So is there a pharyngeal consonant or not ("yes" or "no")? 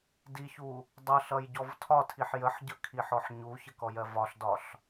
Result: yes